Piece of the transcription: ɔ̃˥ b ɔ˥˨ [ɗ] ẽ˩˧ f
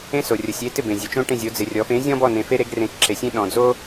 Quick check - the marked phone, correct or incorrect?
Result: incorrect: n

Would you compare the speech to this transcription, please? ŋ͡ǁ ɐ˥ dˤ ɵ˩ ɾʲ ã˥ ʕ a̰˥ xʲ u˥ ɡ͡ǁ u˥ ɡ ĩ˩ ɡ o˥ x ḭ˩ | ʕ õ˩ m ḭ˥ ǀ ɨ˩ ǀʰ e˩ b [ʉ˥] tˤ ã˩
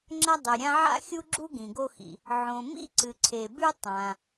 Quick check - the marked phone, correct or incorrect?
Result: correct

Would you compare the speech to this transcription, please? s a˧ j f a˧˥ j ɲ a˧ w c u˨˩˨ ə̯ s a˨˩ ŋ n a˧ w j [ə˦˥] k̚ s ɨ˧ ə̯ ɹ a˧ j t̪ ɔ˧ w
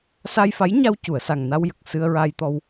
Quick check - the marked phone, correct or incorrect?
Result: incorrect: ə˨˩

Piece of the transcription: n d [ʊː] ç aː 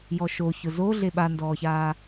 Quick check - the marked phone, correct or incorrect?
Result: incorrect: ɔː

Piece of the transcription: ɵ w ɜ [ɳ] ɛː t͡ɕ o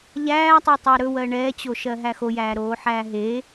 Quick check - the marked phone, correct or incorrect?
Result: correct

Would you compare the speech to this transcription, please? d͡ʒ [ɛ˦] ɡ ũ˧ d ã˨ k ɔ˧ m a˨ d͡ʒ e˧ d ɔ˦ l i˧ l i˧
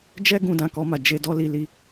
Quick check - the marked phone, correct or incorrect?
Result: correct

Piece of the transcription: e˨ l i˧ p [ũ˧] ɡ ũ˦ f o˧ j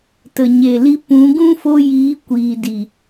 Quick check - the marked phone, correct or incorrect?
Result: incorrect: ũ˨˦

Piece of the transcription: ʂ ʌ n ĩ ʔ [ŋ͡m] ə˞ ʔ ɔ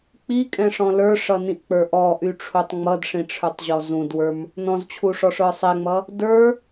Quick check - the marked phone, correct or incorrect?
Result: incorrect: k͡p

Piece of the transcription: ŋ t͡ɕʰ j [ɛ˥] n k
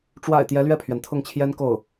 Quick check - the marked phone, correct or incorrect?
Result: correct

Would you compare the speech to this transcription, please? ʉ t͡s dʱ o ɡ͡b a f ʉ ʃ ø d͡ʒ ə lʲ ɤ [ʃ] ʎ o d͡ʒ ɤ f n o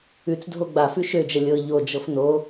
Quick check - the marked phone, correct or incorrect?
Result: incorrect: none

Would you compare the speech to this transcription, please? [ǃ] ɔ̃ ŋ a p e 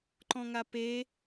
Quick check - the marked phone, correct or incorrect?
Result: correct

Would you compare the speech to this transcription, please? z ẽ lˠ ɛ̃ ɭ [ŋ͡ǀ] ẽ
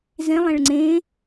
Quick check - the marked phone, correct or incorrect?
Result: correct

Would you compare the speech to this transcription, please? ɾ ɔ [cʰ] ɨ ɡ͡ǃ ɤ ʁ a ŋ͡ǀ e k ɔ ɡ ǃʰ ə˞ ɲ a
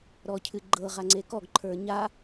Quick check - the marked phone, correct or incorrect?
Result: correct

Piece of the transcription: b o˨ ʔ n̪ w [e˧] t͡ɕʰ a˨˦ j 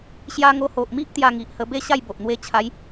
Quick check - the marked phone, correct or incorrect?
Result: correct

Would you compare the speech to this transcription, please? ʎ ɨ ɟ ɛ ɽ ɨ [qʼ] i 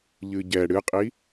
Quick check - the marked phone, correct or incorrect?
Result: correct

